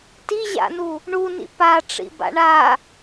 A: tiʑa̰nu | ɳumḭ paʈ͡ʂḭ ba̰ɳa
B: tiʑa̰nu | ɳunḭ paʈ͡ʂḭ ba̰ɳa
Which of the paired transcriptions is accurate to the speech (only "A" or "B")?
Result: B